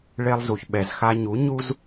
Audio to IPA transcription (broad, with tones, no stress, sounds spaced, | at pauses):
ɭ e˧ lˠ z u˨ ç ɓ ɛ˨ z x a˧ ɲ u˨˦ ɲ u˦ z